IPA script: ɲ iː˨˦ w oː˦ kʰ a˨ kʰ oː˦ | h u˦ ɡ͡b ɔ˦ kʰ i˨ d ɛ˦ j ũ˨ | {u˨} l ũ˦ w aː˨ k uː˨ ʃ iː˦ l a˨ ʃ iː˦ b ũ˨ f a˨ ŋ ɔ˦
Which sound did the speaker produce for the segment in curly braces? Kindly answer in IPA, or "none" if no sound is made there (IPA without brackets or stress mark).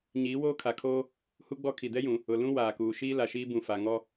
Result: ʊ˨